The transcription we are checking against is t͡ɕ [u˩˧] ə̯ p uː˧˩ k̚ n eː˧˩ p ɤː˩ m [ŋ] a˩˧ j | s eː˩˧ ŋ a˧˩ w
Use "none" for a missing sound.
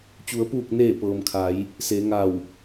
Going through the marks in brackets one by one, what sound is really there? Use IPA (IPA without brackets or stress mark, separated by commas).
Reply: u˩˧, kʰ